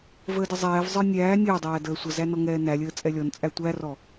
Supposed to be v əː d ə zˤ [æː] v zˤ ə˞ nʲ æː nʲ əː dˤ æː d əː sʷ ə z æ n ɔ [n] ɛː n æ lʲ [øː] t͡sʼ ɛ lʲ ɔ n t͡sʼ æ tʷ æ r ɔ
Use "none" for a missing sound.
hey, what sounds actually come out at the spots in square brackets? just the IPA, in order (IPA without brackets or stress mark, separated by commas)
ɛː, ŋ, əː